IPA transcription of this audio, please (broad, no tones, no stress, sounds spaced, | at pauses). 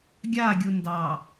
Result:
ɡʲ a ɡʲ u n d ɑ